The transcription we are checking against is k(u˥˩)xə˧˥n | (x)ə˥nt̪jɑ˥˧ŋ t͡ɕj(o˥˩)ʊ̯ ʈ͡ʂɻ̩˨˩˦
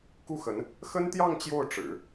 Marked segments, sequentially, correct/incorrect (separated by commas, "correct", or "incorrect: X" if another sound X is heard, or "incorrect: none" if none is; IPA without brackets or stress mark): correct, correct, correct